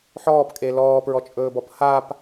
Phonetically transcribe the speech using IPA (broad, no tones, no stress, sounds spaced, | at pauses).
ħ ɔː p kʼ e l ɔː p ɹ ɔ t͡ʃʼ ɵː b ɔ p h a p